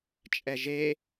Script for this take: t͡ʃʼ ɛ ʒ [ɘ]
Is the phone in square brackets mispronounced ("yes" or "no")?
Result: yes